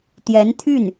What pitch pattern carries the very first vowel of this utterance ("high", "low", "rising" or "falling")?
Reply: rising